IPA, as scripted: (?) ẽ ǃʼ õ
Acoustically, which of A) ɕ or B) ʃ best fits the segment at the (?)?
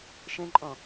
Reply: B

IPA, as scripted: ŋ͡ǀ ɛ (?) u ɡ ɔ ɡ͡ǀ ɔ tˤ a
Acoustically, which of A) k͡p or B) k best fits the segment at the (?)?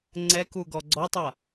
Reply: B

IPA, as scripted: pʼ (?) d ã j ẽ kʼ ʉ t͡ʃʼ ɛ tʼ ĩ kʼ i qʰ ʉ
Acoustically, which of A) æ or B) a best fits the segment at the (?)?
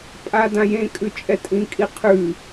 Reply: B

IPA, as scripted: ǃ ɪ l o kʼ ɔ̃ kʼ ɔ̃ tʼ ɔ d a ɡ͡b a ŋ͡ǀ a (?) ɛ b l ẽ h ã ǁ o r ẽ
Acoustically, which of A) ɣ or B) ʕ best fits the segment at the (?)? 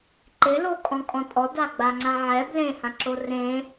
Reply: B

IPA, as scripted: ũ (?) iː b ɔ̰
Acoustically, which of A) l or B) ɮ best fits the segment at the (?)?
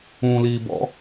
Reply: A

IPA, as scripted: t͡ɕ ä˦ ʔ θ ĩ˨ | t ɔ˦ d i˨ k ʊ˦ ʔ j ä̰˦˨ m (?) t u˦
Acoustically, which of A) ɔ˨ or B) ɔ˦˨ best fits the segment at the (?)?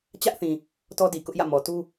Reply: A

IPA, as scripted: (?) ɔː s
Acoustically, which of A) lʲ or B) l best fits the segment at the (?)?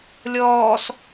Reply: A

